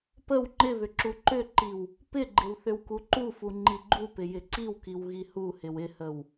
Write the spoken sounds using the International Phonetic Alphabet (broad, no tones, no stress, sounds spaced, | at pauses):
p ə w ŋ͡ǃ ɪ β ʏ ǁ u ǃ ʏ ǃ i w | p ɪ ɡ͡ǃ ɪ w θ ʏ w k u ǃ u f u ŋ͡ǃ i ɡ͡ǃ u p ɪ j ɪ ǀ i w k i w ɣ i h u h ɪ w ɪ h ə w